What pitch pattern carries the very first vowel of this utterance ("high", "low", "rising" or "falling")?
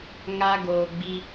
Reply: high